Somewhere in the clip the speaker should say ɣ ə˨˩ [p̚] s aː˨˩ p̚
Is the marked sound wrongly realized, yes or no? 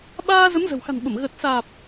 yes